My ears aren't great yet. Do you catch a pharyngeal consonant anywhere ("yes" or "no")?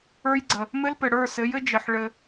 yes